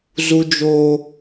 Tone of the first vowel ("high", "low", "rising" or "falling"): high